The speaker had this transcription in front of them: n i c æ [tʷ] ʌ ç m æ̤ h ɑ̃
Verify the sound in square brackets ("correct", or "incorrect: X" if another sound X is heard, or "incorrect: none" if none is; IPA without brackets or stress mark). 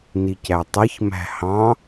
incorrect: tˤ